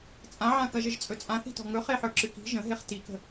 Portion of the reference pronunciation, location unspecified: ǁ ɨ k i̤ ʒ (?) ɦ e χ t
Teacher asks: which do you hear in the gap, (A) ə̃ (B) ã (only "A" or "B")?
A